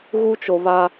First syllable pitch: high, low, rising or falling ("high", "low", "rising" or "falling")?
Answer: high